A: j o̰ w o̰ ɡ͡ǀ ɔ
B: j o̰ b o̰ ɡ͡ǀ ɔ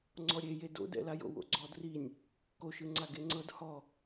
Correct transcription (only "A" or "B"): A